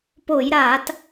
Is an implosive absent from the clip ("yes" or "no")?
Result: yes